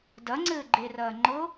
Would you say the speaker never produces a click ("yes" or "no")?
no